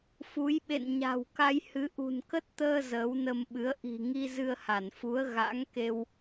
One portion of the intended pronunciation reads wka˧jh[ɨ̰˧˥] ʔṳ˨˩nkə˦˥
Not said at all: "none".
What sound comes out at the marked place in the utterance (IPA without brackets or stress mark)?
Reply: ɨ˨˦